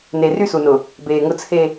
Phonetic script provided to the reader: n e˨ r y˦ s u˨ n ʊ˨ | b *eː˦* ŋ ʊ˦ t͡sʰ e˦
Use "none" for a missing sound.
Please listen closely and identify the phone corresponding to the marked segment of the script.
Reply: eː˨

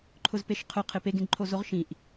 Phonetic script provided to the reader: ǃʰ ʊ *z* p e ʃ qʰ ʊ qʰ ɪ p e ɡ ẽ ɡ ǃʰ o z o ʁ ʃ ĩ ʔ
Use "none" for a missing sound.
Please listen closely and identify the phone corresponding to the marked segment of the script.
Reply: z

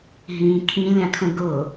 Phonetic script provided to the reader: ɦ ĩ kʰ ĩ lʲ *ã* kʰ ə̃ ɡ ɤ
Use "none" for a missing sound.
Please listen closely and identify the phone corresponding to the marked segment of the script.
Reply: ã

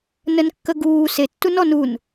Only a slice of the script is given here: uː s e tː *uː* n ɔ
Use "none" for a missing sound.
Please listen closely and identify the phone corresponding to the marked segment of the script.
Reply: u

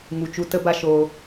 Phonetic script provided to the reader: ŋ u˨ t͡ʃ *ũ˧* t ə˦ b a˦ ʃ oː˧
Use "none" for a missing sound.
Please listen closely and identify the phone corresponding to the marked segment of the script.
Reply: u˧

